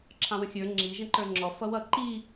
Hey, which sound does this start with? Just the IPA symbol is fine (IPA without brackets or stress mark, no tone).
ǁʰ